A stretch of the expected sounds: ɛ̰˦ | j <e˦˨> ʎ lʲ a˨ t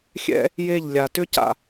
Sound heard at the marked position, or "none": e˦˨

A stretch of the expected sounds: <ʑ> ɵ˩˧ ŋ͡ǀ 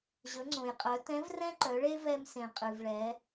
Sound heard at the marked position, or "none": ʑ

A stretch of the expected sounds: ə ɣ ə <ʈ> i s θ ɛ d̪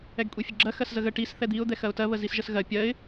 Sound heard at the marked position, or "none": ʈ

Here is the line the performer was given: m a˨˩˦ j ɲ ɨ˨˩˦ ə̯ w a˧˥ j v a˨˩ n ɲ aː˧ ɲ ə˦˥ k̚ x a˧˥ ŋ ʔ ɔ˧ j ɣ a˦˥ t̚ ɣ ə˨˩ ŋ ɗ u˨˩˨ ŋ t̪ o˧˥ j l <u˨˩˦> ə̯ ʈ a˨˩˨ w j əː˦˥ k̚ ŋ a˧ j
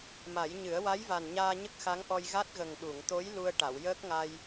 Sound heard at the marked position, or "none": u˧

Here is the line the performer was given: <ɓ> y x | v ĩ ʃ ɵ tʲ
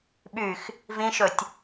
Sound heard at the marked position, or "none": ɓ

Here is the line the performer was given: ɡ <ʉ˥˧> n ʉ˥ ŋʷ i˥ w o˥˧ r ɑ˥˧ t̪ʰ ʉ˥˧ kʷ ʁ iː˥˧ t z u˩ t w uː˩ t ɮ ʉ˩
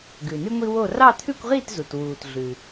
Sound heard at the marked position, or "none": ʉ˩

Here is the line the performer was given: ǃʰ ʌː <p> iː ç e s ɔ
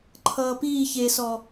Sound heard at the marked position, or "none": p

